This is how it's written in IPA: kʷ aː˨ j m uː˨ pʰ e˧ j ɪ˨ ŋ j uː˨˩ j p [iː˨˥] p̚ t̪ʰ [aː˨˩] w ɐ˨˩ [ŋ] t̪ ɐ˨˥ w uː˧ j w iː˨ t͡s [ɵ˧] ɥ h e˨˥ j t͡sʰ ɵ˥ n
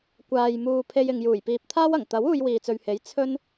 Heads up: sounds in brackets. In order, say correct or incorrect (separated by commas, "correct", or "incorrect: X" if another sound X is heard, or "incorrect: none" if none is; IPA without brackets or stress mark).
incorrect: iː˨, incorrect: aː˥, correct, incorrect: ɵ˨